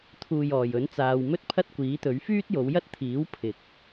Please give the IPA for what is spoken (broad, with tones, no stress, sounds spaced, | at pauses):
t̪ʰ uː˨˩ j ɔː˨˩ j ɵ˨˥ n t͡s aː˨ w m ɵ˥ t̚ pʰ ɐ˥ t̚ kʷ iː˨˥ t̪ ɵ˨˥ ɥ f yː˥ t̚ j o˨˧ w j ɐ˥ t̚ t̪ʰ iː˨˥ w pʰ ɪ˧ k̚